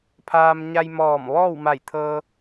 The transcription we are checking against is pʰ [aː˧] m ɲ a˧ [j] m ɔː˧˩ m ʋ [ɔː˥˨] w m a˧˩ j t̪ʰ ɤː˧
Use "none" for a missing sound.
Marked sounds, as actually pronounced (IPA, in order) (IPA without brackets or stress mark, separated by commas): aː˧, j, ɔː˥˨